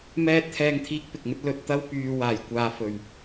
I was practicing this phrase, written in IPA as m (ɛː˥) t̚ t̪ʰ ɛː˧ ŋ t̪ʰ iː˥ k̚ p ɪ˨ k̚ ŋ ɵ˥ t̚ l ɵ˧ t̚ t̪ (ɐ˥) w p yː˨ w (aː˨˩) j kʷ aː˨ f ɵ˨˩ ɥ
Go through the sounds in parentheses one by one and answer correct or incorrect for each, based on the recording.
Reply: incorrect, correct, correct

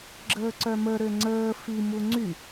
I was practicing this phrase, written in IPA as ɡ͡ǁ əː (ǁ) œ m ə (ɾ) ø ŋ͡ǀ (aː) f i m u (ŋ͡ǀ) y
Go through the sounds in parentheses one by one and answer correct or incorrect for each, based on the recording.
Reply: incorrect, correct, incorrect, correct

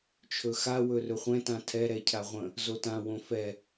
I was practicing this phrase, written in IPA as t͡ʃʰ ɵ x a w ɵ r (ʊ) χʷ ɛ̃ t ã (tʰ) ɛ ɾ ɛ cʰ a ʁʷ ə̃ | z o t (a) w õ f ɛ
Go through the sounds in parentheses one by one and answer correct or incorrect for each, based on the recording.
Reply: incorrect, correct, incorrect

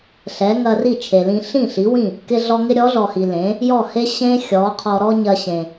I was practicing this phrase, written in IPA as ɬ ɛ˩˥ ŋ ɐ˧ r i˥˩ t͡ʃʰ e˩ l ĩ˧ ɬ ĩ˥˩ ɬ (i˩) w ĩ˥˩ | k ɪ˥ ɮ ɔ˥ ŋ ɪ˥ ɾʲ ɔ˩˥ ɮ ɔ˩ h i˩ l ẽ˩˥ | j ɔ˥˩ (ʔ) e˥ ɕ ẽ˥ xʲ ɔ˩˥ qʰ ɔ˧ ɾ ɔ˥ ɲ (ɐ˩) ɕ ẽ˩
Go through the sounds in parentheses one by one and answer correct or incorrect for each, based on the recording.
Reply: incorrect, incorrect, incorrect

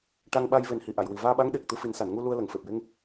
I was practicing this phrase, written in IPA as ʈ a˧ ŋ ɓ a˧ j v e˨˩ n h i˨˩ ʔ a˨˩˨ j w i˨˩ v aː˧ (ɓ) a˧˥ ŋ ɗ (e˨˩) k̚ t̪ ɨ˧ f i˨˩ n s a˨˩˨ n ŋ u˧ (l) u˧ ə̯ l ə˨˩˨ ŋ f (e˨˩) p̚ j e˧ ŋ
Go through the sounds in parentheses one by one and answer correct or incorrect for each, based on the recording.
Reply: correct, correct, correct, correct

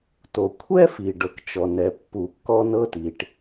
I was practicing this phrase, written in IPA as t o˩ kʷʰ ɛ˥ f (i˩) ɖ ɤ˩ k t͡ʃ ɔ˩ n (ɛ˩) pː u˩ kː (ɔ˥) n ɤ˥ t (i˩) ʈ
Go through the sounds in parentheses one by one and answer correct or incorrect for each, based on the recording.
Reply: correct, correct, correct, correct

